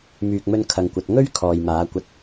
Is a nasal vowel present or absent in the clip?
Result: absent